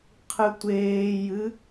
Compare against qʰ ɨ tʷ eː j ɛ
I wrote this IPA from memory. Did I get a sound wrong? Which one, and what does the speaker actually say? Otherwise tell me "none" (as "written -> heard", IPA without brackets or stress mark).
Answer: ɛ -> ɨ